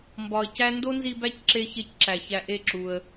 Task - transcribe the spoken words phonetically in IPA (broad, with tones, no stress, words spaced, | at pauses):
mbɒ˨ə̯cæ˦ ndo˦nzi˧ bæ˦cǁe˧çe˧c ǁæ˨çæ˧ʔe˦˨ǁu˧ə̯